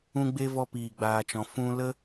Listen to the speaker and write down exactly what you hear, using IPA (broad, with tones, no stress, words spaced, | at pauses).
ũ˧ɡ͡be˧ vɔ˧piː˨ɡ͡baː˨t͡ʃɔ̃˨ fũ˧lə˦